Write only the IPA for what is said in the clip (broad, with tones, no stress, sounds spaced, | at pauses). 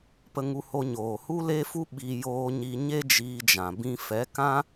p ə˧ ŋ u˧ h o˧ ɲ oː˨ h u˦ l e˦ f u˦ ɓ i˧ j oː˧ ɲ i˧ ɲ e˦ d͡ʒ iː˧ d͡ʒ ã˨ b ĩ˧ f ɛ˨˦ k ã˦